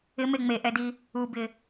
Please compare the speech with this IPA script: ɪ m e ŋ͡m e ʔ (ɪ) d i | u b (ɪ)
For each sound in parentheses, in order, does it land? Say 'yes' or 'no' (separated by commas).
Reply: no, yes